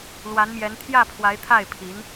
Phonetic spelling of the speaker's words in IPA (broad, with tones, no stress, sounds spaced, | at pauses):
l w a˧˥ n m j ɛ˧˥ n t̪ʰ j ä˥˩ pʰ w a˧˥ ɪ̯ t̪ʰ a˥˩ ɪ̯ pʰ i˧˥ n